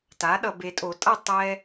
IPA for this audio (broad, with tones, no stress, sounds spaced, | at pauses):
t a˩˥ ɗ ʌ˨ b e˨ tʼ o˨˩˦ tʼ ʌ˥˨ tˤ ɛ˦